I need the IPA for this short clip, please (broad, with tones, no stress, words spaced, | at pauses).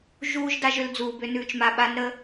ʒuː˥ʒ da˥ʒʏ˧˥ld͡zuː˧bʏ˧˥ nʉː˧t͡ʃma˧ɓa˧˥n ɾə˧˥